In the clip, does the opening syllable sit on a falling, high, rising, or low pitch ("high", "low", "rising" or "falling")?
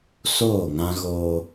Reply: falling